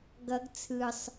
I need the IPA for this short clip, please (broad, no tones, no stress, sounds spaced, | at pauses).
ɡ ʌ ɡ t͡sʰ ɯ sˤ